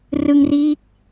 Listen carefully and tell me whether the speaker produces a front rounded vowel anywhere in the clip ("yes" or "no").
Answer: no